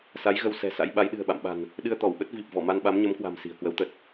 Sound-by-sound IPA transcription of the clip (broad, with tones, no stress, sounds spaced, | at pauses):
s a˨˦ j ɣ ə˧ w s ɛ̤˨˩ s a̰˧˥ j ɓ a˨˦ j ɗ ɨ̤˨˩ ə̯ ɓ a̰˧˨ m ɓ a̤˨˩ n | ɗ ɨ˧ ə̯ t̪ ɔ˧˩ w ɓ ə˦˥ t̚ v i˨˩ p̚ v ɔ˧˩ m a˧ n ɓ a˨˦ m ɲ ə˨˦ m k w a̤˨˩ m s i̤˨˩ ə̯ k w ə˨˦ w t̪ ə˨˩ t̚